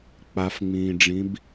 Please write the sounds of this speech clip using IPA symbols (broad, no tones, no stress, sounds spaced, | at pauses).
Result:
k͡p a f ŋ͡m ĩː ɖ͡ʐ ĩ b